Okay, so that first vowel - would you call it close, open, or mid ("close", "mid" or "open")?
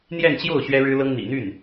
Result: mid